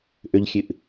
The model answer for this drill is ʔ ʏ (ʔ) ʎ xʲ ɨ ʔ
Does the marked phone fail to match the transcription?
yes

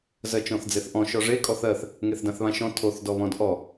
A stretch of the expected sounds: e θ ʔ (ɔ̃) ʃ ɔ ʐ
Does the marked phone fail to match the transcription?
no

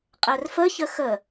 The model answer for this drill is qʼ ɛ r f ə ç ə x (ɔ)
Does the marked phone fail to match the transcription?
yes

